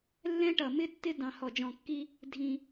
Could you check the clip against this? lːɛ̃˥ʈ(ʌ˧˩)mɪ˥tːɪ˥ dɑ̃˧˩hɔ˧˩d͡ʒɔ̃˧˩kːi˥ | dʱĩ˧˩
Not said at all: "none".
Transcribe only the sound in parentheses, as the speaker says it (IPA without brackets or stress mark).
ʌ˧˩